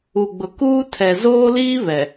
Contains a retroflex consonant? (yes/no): no